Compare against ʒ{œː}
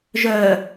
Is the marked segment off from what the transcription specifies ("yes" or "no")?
no